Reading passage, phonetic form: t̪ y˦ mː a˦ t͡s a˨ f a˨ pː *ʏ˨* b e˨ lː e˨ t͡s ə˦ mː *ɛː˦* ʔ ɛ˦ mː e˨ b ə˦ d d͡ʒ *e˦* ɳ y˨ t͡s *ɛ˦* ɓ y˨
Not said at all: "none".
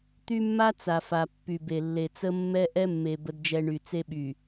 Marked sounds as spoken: y˨, ɛ˦, ɛ˦, e˦

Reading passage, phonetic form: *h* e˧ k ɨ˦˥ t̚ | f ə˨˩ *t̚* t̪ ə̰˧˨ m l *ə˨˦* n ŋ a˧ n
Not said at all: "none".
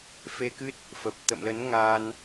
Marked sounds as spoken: f, p̚, ə˨˦

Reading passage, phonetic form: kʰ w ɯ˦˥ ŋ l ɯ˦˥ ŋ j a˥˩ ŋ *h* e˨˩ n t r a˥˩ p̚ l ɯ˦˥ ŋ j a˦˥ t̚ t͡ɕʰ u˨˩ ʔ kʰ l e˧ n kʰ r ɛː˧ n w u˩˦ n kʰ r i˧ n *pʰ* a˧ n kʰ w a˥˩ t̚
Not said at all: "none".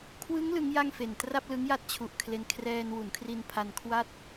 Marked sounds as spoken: f, pʰ

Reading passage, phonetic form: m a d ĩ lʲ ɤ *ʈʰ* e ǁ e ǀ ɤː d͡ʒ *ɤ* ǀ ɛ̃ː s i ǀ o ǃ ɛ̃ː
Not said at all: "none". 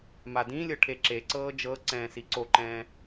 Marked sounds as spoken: ʈʰ, ɤ

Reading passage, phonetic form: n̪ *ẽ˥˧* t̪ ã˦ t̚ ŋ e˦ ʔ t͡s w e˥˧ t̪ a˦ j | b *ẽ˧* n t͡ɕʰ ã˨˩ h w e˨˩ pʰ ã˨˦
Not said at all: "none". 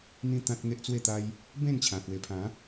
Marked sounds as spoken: ĩ˥˧, ẽ˥˧

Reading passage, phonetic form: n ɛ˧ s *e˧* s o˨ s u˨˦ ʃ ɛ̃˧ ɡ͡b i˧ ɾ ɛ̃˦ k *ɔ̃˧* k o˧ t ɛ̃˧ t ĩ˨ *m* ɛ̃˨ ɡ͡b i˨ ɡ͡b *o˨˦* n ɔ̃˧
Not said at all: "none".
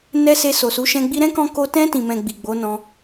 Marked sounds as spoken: e˧, ɔ̃˧, m, o˨˦

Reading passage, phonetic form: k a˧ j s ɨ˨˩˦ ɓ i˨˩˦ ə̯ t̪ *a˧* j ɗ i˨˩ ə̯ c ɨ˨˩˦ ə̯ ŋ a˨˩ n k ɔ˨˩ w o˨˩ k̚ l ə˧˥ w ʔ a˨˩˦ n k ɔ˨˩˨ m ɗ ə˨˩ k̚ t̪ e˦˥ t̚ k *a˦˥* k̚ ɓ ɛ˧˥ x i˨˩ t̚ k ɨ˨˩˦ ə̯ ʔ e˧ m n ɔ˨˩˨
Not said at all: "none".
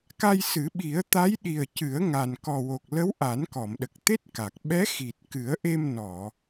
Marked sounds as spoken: a˧˥, a˨˩

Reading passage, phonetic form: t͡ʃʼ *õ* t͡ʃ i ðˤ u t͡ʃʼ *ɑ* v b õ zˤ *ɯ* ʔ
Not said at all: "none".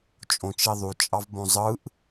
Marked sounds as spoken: õ, ɑ, ɯ

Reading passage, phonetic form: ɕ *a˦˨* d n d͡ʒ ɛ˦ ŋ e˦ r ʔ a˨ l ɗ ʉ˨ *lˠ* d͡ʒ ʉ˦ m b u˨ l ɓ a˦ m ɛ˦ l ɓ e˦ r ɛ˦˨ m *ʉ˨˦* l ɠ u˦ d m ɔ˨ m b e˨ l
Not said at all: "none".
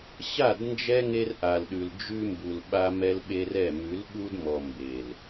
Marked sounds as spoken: a˦˨, l, ʉ˨˦

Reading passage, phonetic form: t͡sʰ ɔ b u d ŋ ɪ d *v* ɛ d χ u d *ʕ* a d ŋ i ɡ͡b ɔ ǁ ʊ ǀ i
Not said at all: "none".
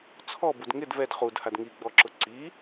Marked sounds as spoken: v, h

